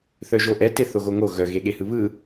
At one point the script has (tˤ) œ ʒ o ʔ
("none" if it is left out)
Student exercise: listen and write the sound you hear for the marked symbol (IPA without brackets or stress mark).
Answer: θ